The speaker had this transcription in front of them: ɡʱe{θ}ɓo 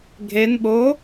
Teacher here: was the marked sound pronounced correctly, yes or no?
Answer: no